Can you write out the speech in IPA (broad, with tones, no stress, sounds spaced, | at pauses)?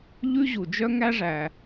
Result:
ʎ ʉ˥ ʑ u˩ d͡ʒ œ˥ ŋ æ˥ ʐ æ˩